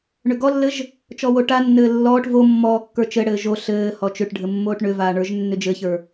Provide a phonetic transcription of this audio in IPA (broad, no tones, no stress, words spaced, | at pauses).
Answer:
ɳʏɡɔlːɘʒ | t͡ʃɔwoʈanːɘː lːɔːʈ vo mːɔːkːə˞t͡ʃɘɽɘː ʒo ɬɘː hɔt͡ʃʏʈɖʱɘ mːoːʈɳʏvaː ɳə˞ʒnːʏd͡ʒɘçə˞